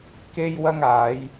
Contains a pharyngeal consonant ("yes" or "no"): no